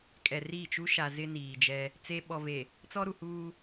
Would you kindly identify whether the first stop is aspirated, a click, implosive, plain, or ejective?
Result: ejective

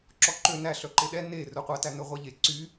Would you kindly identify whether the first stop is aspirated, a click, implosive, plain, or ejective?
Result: click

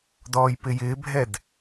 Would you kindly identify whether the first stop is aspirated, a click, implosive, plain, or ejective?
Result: plain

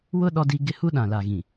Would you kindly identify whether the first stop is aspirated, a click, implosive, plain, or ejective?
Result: implosive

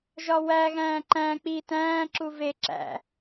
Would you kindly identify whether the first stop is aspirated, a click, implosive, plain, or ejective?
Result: click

